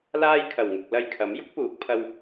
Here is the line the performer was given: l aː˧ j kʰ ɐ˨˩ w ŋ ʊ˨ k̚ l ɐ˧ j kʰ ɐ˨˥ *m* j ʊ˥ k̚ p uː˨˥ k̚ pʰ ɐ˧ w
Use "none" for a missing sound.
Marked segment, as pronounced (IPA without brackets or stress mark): m